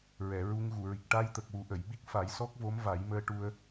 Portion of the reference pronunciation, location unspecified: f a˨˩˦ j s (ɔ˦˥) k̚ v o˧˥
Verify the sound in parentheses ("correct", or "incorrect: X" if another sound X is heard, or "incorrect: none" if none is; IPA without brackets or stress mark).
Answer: correct